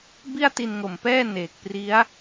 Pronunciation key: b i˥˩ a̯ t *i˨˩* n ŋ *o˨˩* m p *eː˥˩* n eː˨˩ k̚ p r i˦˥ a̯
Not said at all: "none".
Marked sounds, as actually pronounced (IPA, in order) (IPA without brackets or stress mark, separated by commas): i˧, o˨˩, ɛː˥˩